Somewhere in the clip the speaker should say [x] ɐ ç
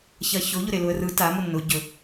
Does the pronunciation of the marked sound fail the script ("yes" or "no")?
yes